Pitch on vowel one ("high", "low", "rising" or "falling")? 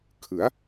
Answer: rising